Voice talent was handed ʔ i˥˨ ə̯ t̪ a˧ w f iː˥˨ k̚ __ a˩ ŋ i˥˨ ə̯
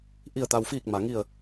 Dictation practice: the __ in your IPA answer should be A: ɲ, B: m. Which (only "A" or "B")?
B